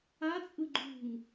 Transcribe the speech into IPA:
a t͡sʼ ɯ ɡ͡ǃ ṳ ŋ

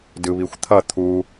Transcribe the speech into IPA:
d ɯ β i xʷ t̪ʰ ʌ t̪ʰ u

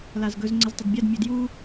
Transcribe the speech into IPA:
l a z ɡ ɵ z ŋ͡ǀ ə z tˤ ə d bʲ a d mʲ ɵ d j u

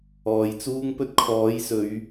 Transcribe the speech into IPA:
ɔː˨ j t͡s uː˥ ŋ p ɵ˥ t̚ kʰ ɔː˨˥ j s ɵ˨˧ ɥ

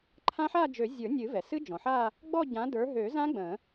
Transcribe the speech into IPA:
ǃʰ ã˦˥ ħ a˥˧ d͡ʒ ø˨˩˦ zʲ ə˞˨˩˦ nʲ ɨ˨˩˦ v ɛ˩ s ɨ˦˥ d͡ʒ ɔ̃˩ ħ a˥˧ | ɡ͡b ɔ˥˧ ɟ ã˨˦ d ə˞˨˦ ɦ ø˨˩˦ z ã˦˥ ɡ͡b ə̃˨˩˦

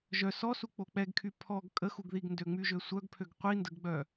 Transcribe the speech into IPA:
ʒ œ s ɔ s u k͡p o k͡p ɛ ɡ kʰ y pʰ ɔ ɡ kʼ ə x u ɡ ð i ɡ n d ø ŋ͡m y ʒ ø sʷ œ ɡ pʰ ø ɡ qʷ i n d ə ɡ ɡ͡b œ

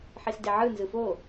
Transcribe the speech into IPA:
ħ i s d e ʕ ɯ n z ɯ f o

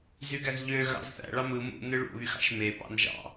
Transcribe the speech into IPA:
z y ɡ æ z ʎ ø ɣ ɑ̰ z θ æ̰ ɭ ɑ m ɯ m ṵ n ɯ ɭ ṵ β y x ɑ̰ ʃ m e p ɑ̰ n ʒ ɑ̰

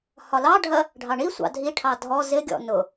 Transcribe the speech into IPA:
h ɒ l ɑ ɖʱ ɜ | ɖʱ ɑ ɳ i sʷ ɑ̰ dʱ i ʈʰ ɑ dʱ ɔ z ɪ ɡʲ ɔ̰ n ʊ

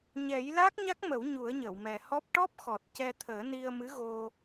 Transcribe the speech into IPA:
ɲ ɛ˨˩˦ j l a˦˥ k̚ ɲ a˦˥ k̚ m ə˨˩˦ w ɲ u˨˩˦ ə̯ ɲ ə˨˩˨ w m ɛ˨˩ h ɔ˦˥ p̚ ʈ ɔ˦˥ p̚ x ɔ˨˩ t̚ c ɛ˧ t̪ʰ əː˨˩˦ n i˧ ə̯ m ɨ˧˥ ɣ o˧

